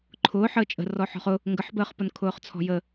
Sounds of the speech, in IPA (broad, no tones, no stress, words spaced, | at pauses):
ǃʰʊːħəː t͡ʃʼə̤rɔ ħɔ̤χʊ | ŋɡəħbəːχpʊn kʰʊːχt͡sʰɔ̤jə